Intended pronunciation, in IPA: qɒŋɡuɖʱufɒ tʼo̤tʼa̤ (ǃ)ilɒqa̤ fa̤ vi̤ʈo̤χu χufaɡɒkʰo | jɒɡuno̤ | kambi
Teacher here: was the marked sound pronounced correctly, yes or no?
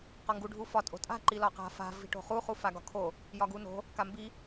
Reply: yes